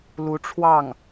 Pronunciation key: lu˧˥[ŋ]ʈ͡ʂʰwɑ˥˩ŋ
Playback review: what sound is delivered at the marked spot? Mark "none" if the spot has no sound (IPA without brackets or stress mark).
none